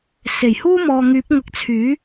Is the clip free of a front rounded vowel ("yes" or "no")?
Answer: no